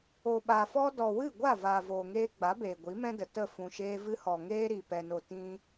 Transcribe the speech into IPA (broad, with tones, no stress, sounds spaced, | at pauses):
o˨ ɓ a˨ f ɔ˦ d ɔ˨ w ɨ˦˨ ɡʷ a˦˨ v aː˨ v oː˨ ŋ eː˧ ɡ͡b a˨˦ b eː˨ ɡʷ i˨˦ m ɛ̃˦ d ə˨ t ə˦˨ f ũ˨ ʃ eː˧ v ɨ˧ h ɔ˨ ŋ eː˦ ɾ i˨ p ɛ˧ n o˧ t ĩ˦